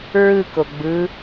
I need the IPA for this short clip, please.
ɹɯko ɡ͡bɯ

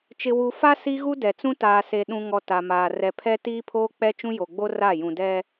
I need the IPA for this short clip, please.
t͡ʃɪ˨wu˨ fa˦ si˦ɣu˦dɛ˨t͡sũ˦ taː˨se˨ ɗũ˨ŋɔ˨ ta˨maː˨ rɛ˨ pʰɛ˦tiː˦pʰoː˦ k͡pɛ˦t͡ʃũ˦jo˨ɡ͡bo˦ ra˦˨ jũ˨dɛ˦

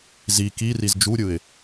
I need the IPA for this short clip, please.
zi kiriz d͡ʒuɾʲɯɪ̯

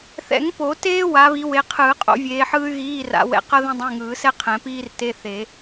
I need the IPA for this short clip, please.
θɛ̰˨˩˦ŋpo˨˩˦teː˥ wa˨˦βi˨˦we˨˦qʰɯː˨˩˦ qʼo̰˨˩˦vʲeː˨˦ħɯː˥y̯ ɣiː˧˥˧ra̰˨˦ wɛ̰˨˦qʌ˥ðẽ˥ dˤẽ˧˥˧ŋɯː˨˩˦sɛ˥ qʰɛ̃˨˩˦piː˥rte˧˥˧ θe˨˩˦

